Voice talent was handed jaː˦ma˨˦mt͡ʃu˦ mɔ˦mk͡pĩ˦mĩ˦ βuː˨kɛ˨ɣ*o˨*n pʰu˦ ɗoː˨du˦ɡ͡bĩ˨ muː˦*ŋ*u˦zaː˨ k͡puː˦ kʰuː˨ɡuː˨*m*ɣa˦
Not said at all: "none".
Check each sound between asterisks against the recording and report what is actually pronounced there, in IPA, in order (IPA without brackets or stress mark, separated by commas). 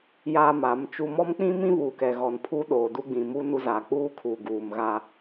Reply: ɔ˨, n, m